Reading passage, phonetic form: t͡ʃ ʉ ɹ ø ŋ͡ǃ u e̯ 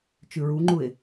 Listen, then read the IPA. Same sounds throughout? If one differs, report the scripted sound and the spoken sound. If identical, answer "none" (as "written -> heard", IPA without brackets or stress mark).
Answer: ø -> u